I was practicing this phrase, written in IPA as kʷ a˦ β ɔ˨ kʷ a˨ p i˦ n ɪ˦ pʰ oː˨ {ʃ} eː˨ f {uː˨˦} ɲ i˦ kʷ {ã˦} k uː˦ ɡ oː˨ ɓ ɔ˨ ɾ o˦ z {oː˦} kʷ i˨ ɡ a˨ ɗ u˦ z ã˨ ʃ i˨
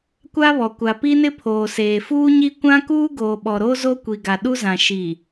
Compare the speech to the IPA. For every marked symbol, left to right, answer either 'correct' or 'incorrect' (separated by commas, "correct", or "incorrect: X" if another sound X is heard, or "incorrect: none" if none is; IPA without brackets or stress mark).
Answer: incorrect: s, incorrect: uː˦, correct, incorrect: o˦